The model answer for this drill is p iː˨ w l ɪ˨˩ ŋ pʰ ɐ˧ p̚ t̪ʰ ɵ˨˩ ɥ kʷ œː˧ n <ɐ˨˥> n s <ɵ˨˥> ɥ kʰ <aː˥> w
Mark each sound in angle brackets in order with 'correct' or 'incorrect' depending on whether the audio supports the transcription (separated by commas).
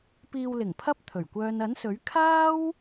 correct, correct, correct